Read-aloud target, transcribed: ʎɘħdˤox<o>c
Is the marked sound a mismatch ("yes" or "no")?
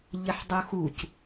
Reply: yes